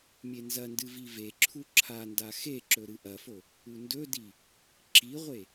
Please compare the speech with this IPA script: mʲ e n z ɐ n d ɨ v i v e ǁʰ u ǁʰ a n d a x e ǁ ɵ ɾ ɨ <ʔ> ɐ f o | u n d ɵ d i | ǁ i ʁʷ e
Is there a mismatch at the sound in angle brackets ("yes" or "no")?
no